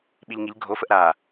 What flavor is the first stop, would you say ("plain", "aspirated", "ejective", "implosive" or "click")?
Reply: implosive